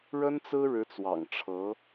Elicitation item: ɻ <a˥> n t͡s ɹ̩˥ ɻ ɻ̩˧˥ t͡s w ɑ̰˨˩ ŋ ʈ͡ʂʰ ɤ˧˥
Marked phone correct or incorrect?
incorrect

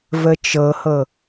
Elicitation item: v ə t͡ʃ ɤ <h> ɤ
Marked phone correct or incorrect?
correct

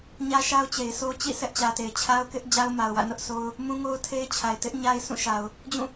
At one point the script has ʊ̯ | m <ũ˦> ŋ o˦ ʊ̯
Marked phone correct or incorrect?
correct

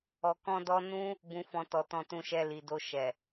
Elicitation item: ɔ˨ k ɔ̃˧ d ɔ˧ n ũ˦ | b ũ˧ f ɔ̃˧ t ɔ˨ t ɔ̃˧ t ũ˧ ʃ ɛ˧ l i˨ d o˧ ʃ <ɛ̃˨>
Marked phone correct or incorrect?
incorrect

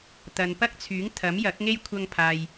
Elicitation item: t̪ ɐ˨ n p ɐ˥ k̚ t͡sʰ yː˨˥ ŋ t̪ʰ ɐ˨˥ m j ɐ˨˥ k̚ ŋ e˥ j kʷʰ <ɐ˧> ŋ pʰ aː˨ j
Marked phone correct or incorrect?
correct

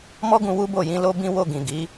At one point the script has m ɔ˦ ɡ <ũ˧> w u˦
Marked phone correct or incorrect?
correct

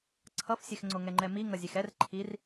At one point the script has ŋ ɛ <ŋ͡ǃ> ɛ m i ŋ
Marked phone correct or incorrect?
correct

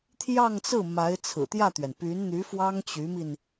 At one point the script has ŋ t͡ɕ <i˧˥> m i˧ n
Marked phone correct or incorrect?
incorrect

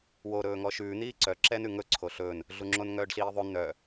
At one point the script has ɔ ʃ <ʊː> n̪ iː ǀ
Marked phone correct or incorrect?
incorrect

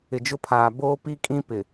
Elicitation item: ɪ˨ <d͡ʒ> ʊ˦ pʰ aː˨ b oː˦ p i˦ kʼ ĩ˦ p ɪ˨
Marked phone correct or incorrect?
correct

